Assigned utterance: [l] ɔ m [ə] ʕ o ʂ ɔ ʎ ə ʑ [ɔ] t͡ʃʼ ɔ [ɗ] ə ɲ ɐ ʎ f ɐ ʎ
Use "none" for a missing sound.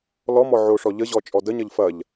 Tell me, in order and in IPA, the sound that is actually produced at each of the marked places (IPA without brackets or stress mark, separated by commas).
l, ɔ, ɔ, d